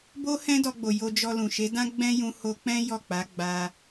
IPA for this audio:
bo˦hɛ̃˦dɔ˧ɡ͡bo˨ jo˧d͡ʒɔ˧ lũ˨ʃe˨˦dã˦ ɡ͡bɛ̃˦ jũ˧ho˧k͡pɛ̃˦ jɔ˦˨k͡pa˨˦ɡ͡ba˧

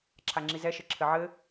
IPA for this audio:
ǁʰaŋ͡ǁizɛ ʃɘǁʰɘʕɘ

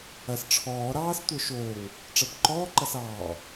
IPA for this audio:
ɐs ʈ͡ʂʰɔː ɾɑːstʷə˞ ʃoːŋ | ʈ͡ʂɐbǃɔːǃɐs ɑː

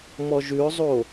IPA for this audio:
mɔʒʉʊ̯zˤo

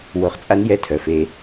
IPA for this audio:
wo˧χt͡sʼa˦njɛ˦˨ tʰœ˧fe˦

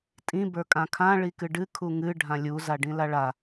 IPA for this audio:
tʼĩ bə˞kʼãkʰã ɭikɨɖɨ kʰuŋɨ ɖʱãlʲu zaɖĩlaɭa

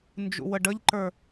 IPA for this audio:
nd͡ʒṵwəɖəʎǃə˞

